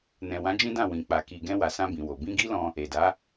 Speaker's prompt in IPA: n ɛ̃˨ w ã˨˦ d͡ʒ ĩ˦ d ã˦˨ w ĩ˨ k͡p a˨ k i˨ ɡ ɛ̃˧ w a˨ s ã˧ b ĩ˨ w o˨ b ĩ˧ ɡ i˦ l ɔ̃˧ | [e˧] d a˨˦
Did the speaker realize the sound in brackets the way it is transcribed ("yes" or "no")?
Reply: no